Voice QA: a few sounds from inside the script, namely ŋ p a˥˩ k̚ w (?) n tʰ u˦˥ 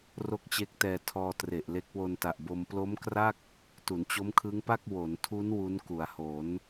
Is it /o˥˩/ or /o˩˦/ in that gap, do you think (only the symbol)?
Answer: o˩˦